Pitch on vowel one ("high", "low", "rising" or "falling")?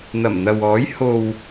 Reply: low